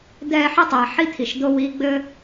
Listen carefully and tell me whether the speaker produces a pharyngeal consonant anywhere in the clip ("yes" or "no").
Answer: yes